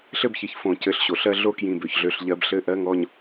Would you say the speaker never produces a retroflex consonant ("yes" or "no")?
yes